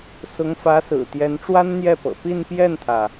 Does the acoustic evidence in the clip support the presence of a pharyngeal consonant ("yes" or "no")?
no